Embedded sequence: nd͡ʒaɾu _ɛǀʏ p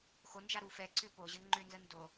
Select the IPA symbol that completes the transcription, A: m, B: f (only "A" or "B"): B